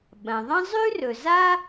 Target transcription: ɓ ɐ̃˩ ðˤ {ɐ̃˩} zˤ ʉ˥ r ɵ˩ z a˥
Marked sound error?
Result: yes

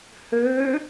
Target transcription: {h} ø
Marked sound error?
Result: no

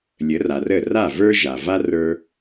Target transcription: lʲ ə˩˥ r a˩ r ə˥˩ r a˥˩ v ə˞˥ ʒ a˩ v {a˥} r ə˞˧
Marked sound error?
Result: no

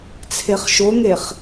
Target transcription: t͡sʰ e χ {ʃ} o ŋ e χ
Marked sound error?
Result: no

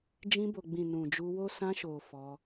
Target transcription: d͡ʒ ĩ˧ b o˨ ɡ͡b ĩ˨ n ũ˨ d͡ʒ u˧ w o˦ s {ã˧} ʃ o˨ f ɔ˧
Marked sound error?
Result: no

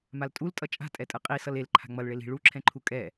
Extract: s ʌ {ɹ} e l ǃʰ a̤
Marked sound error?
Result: yes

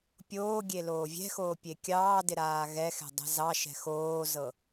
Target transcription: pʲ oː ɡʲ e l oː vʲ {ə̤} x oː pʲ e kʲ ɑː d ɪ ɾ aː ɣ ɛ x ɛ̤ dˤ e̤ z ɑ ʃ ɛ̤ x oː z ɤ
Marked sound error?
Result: yes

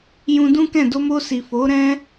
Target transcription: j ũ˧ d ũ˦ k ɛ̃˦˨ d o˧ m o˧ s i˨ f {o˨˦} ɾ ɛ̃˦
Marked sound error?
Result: no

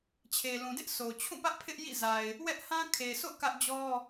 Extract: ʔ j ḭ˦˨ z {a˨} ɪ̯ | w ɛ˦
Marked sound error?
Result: no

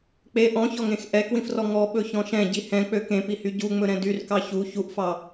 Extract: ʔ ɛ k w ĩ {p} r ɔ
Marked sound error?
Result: yes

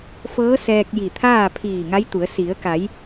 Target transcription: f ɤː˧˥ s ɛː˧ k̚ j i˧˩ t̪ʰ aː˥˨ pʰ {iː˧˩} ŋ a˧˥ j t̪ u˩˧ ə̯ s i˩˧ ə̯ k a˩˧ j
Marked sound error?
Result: no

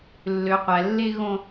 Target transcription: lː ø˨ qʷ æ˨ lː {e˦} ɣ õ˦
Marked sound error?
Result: no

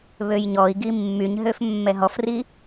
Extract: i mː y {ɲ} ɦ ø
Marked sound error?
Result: no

